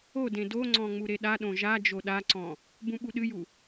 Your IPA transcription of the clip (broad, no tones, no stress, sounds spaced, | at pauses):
o d ẽ d o ŋ͡ǀ ɔ̃ ŋ͡m u ɾ e ɗ a ɗ õ ʒ a d͡ʒ o ɗ a ǀ ɔ̃ | b ũ ɓ u ɗ ɨ j u